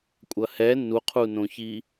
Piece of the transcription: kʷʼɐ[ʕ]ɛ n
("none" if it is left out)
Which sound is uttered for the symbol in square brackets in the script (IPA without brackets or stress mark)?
h